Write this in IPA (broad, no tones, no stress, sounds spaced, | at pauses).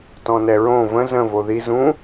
t ɔ̃ n ɛ ɹ õ v ə̃ z ə̃ v o ð i z ũ